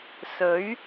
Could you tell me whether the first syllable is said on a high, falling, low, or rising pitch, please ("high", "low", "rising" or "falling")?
rising